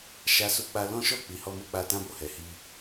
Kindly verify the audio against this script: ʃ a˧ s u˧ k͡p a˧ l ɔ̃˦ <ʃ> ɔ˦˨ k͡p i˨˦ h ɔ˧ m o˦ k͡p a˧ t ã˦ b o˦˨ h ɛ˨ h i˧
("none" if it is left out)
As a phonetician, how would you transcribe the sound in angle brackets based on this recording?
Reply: ʃ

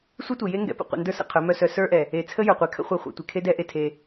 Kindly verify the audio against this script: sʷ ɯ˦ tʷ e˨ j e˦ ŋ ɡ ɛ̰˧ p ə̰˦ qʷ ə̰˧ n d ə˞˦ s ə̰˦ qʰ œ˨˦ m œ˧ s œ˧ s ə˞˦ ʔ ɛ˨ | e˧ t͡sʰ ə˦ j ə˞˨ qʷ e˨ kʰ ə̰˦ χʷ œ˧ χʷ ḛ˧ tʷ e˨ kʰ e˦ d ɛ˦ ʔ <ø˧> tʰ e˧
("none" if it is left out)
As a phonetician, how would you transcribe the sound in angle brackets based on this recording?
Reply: e˧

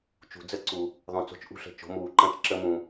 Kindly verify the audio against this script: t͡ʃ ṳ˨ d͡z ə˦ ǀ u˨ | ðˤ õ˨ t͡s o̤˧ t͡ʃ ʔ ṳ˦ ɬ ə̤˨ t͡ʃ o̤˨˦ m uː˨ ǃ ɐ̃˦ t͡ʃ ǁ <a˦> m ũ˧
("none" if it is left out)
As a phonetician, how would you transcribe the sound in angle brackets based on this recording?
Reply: ə˦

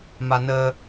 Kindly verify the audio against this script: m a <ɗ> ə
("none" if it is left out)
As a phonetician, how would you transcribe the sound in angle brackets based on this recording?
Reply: n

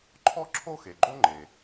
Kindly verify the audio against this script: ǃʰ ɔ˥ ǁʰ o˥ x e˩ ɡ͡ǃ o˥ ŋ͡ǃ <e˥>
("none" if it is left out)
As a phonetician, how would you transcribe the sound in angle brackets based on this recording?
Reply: e˩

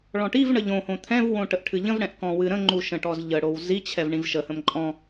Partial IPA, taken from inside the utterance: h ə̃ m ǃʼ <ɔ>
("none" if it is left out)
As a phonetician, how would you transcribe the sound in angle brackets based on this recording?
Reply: ɔ̃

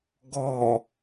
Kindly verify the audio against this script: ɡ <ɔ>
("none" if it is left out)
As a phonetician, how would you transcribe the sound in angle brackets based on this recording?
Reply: ɔ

